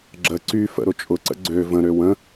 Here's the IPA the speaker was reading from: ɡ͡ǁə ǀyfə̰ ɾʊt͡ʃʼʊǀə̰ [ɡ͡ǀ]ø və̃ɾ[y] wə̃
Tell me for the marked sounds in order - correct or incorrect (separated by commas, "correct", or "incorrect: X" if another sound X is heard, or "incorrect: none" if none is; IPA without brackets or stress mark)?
correct, incorrect: ø